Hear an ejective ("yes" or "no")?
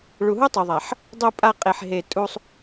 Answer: yes